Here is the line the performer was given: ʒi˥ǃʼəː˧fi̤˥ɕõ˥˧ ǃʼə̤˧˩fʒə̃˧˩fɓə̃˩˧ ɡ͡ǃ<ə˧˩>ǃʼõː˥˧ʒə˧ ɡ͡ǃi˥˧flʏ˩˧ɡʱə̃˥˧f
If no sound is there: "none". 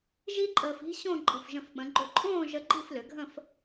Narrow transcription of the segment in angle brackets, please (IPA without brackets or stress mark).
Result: ʏ˧˩